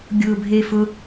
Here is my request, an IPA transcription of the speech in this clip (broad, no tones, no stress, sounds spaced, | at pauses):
ɡʲ ʊ bʱ e f ʊ